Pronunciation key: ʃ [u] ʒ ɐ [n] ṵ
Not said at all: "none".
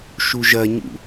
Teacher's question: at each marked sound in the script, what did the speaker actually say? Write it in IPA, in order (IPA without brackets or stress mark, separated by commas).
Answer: u, ɲ